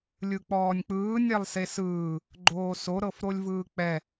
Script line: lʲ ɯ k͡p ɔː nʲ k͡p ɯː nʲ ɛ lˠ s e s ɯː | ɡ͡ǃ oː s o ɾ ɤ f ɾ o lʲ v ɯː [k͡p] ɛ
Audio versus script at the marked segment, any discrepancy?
no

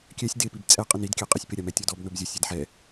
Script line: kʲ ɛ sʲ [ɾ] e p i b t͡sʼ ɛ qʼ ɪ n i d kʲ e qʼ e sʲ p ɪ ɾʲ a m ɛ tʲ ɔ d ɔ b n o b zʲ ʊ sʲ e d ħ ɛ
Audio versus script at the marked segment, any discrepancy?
yes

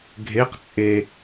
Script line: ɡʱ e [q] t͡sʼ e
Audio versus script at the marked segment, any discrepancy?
no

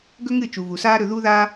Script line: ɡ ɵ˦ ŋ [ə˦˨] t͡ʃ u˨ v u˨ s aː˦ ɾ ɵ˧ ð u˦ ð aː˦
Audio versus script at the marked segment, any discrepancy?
yes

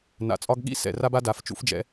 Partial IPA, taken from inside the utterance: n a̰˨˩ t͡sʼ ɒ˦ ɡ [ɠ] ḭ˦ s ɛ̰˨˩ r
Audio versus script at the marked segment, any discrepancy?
no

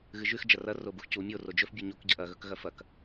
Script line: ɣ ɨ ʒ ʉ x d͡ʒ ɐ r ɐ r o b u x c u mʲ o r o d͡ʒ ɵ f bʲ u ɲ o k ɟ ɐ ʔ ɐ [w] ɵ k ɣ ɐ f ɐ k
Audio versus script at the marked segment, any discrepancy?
yes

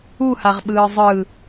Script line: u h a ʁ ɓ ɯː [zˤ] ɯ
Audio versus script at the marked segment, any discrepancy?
no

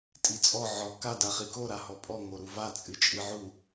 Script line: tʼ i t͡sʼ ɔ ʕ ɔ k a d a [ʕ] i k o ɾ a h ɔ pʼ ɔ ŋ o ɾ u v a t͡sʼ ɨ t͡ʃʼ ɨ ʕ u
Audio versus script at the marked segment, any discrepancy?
yes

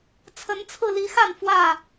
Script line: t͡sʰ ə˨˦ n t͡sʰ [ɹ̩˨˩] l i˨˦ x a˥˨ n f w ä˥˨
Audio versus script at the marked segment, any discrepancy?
yes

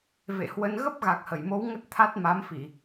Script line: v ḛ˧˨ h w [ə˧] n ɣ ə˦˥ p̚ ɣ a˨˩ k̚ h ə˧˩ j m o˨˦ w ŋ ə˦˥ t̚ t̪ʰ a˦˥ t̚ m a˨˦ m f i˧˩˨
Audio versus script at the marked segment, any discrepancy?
no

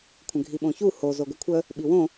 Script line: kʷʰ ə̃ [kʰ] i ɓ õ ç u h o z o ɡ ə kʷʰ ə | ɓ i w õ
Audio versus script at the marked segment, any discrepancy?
yes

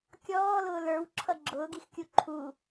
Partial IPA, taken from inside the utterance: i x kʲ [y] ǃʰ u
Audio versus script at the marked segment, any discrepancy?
yes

